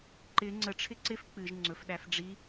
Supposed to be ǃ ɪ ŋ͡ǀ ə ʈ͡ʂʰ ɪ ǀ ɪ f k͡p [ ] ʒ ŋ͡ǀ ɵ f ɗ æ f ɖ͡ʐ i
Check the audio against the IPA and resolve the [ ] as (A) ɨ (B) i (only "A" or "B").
A